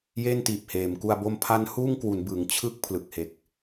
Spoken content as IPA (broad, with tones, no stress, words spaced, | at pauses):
je˥˩ntiː˨˩p̚heː˩˦m ku˧a̯bo˦˥m pʰa˦˥nhuː˥˩ŋkwu˩˦n bɯ˩˦ŋt͡ɕʰɯ˦˥k̚ pʰlɯ˨˩k̚he˨˩k̚